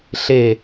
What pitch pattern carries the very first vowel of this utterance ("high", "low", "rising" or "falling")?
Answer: falling